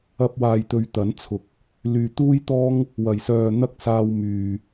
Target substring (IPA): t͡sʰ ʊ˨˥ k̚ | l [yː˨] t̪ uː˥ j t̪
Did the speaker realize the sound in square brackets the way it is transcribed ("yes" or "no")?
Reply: yes